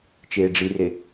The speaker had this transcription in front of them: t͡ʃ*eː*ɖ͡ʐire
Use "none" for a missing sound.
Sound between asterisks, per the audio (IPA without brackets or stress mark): eː